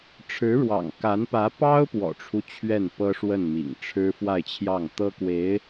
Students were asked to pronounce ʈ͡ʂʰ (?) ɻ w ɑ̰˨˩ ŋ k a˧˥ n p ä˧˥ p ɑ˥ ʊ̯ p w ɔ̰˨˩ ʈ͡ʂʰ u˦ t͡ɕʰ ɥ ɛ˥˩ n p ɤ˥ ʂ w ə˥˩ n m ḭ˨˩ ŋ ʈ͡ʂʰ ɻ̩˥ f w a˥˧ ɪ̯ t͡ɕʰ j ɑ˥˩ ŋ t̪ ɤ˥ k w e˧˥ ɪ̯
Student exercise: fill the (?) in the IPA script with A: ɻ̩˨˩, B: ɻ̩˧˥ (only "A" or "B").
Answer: B